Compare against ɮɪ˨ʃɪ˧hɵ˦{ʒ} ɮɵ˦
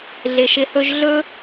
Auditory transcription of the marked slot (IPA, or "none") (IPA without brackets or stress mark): ʒ